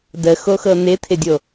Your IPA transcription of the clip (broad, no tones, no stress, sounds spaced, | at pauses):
d ə x o x ɤ n̪ ɪ t̪ʰ ɪ dʲ o